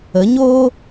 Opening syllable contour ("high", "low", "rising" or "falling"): rising